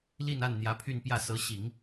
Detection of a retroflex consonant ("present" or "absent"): absent